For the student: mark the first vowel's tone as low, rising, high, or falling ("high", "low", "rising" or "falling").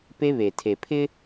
high